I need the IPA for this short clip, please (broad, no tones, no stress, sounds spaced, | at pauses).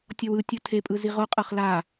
tʲ ɔ w ɯ tʲ u tʰ e pʼ ɯ z i ʁ o qʼ ɤ χ l a